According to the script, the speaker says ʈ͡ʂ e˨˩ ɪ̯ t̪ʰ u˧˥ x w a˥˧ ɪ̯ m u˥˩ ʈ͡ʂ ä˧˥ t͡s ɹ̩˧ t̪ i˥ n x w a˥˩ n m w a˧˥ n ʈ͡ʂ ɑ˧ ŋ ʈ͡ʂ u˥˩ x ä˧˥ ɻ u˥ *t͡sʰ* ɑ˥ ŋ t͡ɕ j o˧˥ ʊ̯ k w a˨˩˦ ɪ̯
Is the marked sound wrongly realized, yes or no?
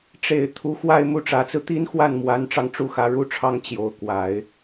yes